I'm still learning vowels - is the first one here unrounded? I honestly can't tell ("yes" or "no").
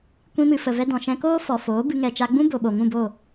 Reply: yes